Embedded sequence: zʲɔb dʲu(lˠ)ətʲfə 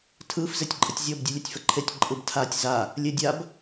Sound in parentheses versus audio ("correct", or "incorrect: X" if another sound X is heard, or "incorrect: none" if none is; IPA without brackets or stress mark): incorrect: lʲ